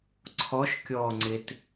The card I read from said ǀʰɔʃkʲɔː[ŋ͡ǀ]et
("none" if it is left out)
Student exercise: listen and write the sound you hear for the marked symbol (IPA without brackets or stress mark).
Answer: ŋ͡ǀ